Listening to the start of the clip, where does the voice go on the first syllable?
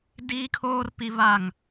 high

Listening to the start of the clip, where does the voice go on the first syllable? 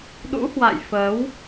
rising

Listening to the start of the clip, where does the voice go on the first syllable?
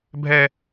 high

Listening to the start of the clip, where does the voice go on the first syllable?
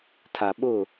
low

